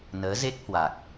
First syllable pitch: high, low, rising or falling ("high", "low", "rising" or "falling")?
rising